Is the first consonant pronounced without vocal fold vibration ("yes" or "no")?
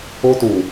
yes